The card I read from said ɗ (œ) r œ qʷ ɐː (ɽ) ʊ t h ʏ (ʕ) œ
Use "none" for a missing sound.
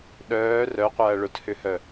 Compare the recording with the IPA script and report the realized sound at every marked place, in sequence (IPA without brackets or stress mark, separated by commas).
œː, ɭ, h